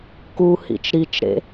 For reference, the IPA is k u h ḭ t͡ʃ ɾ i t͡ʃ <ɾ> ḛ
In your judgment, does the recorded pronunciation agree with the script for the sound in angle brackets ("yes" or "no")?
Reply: yes